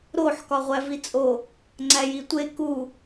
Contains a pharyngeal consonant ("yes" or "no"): yes